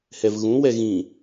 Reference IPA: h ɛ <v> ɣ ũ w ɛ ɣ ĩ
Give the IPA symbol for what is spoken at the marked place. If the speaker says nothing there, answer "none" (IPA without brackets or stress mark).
v